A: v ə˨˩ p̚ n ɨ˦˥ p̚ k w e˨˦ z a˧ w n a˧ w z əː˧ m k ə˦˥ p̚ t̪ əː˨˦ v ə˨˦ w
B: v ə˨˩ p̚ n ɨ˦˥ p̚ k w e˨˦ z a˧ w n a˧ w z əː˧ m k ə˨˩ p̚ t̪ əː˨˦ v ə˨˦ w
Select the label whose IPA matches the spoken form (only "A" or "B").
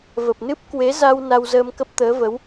A